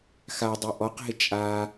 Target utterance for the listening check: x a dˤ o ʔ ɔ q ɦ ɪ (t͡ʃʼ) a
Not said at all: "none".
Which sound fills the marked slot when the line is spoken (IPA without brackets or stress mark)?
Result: t͡ʃʼ